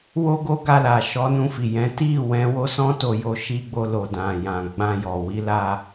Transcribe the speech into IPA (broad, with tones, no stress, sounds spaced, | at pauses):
w o˦ ɡ o˦ ɡ a˧ l a˨ ʃ ɔ˨˦ n ũ˧ f i˨ j ɛ̃˨˦ t i˦˨ w ɛ̃˨˦ w o˦ s ɔ̃˦ t o˧ j o˧ ʃ i˧ ɡ͡b o˧ l o˨ d ã˨ j ã˨ ɡ͡b ã˧ j ɔ˨ w i˨˦ l a˧